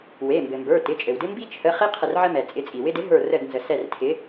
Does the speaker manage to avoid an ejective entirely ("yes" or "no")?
no